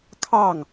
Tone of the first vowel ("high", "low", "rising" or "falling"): falling